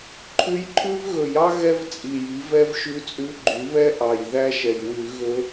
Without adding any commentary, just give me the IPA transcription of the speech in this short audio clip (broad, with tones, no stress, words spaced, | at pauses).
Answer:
ǃʰʉ˧˥jǃʰʉ˥vɣɵ˧˩˧jɑ˥ ɣɛ˥vt͡sʼi˨˩ji˩˥vɛ˥v ʃʉ˧˥t͡sʼʉ˧˥ɡ͡ǃy˩˥βɛ˥ ʔɑ˨˩j ðæ˥ʃɛ˨˩j wʉ˧˩˧ ɣɵ˧˥